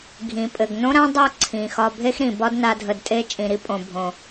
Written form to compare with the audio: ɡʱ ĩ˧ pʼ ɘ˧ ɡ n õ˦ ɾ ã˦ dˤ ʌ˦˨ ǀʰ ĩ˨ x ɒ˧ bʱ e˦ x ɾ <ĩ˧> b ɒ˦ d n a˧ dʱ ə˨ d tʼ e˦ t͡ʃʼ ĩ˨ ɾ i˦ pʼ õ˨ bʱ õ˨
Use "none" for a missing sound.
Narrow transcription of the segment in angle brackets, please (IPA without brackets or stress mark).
ĩ˨